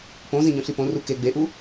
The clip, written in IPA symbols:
põzĩɲõɬi põru ke ɡ͡beʔu

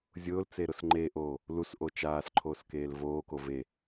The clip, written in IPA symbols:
zʲʊːlt͡se ɾʊsŋ͡ǃeʔoː | lusʔo t͡ʃaːs ǃʰoːskeːlvoːko ve

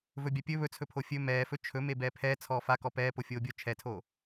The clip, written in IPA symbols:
vɵbʲapʲɵ βɵt͡sʰɵpʰo fʲɵ mɛːfɵ t͡ʃʰɵme bɛːpʰɛː t͡sʰɔːfa kɔpɛːpo fʲoːbʲo t͡ʃʰɛtʰoː

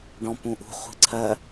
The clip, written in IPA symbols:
ɖɔ̃ pũʔṳ χʷi̤ǀʰɜ

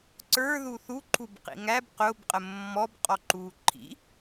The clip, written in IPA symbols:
ǀə˞ ðuθuǃʰub qḭŋæb qʊːbqʼə mːɔb qʼɔǃuːǃʰḭ

